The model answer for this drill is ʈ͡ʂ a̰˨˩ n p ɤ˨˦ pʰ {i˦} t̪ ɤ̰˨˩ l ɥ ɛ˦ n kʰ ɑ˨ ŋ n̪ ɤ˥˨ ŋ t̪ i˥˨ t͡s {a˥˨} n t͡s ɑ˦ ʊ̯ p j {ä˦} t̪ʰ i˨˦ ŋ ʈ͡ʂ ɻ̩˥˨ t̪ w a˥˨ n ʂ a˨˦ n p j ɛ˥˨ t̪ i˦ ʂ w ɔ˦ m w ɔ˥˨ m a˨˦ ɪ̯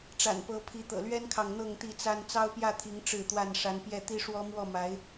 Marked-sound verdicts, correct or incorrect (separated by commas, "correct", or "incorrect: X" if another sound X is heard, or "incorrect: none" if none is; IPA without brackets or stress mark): incorrect: i˨˦, incorrect: a˦, incorrect: ä˥˨